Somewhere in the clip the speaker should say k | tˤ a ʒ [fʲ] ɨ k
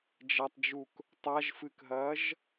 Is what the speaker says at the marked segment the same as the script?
no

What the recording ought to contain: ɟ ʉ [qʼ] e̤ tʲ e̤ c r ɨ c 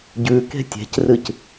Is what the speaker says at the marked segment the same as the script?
no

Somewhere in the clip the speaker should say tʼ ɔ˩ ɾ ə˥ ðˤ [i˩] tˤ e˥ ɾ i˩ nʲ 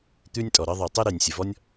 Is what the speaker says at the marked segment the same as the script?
yes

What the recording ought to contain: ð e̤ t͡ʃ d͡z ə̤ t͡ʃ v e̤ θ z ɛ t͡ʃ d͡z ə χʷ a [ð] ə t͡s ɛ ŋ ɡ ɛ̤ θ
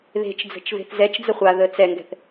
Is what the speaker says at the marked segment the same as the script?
yes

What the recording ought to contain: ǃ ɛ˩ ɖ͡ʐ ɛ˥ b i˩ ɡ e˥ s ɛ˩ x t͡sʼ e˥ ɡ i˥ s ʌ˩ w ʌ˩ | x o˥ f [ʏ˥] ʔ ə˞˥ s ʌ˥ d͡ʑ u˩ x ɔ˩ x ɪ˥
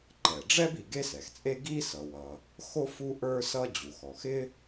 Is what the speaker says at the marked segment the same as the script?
no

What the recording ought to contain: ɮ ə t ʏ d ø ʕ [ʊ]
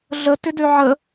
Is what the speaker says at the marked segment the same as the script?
no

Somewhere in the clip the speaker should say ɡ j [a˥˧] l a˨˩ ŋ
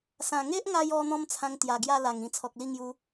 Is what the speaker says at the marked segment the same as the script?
yes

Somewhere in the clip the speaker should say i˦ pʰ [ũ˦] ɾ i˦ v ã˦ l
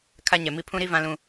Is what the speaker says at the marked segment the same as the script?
yes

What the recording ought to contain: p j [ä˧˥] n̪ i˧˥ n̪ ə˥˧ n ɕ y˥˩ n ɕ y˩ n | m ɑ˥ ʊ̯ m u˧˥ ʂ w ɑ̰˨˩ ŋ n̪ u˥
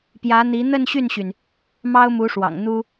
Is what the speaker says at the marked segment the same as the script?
yes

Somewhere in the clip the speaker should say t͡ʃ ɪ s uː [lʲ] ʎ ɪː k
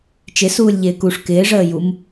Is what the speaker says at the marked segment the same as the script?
yes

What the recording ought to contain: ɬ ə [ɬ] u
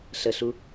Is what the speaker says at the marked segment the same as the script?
yes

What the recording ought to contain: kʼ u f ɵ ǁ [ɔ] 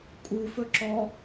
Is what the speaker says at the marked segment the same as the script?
yes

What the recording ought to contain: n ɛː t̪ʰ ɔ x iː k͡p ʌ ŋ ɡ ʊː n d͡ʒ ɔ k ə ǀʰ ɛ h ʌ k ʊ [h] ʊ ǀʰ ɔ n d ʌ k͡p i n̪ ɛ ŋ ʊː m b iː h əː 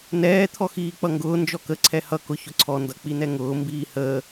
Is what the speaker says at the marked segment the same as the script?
no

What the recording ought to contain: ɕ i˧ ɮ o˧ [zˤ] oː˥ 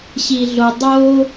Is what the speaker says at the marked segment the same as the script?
no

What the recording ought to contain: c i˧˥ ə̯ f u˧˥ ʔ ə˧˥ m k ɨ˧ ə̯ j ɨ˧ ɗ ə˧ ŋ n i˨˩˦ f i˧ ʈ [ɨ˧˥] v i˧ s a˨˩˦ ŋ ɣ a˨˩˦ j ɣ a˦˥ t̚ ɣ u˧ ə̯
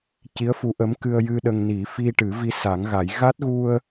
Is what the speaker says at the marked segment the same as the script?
no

